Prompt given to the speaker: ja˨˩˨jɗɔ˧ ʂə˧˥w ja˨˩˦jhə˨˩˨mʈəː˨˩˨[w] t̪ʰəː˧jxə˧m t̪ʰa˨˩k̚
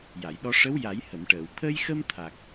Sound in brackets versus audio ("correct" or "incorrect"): correct